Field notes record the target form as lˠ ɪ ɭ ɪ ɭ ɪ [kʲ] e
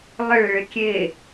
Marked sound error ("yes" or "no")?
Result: no